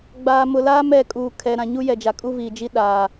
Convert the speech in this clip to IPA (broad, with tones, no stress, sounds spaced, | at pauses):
ɡ͡b aː˨ m ʊ˨ l aː˦ m ɛ˦˨ kʼ uː˨ kʰ ɛ˨ ɾ ã˨ ɲ u˦ j ɛ˨ d͡ʒ a˨ kʼ u˦ v iː˨ d͡ʒ i˦ ɗ aː˨